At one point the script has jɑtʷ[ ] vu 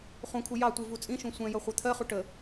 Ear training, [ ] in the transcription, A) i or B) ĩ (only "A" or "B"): A